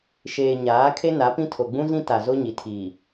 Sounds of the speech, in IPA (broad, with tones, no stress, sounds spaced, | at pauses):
ʃ eː˨ ɲ aː˨˦ kʰ e˦ n a˨˦ p ĩ˦ tʰ o˨ ɡ͡b ũ˦ z ĩ˦ t a˨ z o˦ ɲ i˨ tʰ iː˨